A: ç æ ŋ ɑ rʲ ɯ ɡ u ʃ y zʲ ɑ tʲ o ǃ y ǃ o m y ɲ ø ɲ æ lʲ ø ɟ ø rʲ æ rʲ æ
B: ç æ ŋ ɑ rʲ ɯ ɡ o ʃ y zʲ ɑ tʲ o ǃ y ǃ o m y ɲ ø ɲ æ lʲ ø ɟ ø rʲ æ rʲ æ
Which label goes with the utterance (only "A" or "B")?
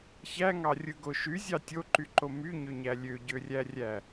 B